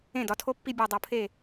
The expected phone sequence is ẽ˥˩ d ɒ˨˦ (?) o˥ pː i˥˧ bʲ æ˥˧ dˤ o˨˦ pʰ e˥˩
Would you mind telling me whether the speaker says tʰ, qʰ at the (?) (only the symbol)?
tʰ